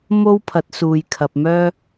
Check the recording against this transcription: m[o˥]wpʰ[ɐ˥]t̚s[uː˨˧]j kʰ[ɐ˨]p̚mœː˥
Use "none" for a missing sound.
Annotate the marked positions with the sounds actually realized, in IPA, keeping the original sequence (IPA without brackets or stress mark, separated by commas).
o˥, ɐ˨˥, uː˨, ɐ˨